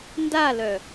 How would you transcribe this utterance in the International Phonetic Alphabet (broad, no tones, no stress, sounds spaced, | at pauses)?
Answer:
n d a l œ